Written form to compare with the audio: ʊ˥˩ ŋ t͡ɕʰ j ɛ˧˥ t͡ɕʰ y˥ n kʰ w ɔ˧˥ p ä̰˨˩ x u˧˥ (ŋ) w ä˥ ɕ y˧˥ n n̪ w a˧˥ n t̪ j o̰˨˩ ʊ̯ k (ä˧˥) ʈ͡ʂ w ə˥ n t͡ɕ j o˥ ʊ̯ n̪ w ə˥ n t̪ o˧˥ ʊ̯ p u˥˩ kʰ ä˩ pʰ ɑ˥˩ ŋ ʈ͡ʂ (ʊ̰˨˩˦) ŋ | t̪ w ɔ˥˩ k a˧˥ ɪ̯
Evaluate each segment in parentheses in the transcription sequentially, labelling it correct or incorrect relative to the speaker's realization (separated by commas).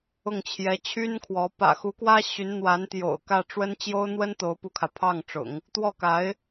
incorrect, incorrect, correct